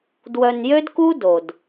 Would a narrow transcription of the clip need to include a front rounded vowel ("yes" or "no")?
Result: yes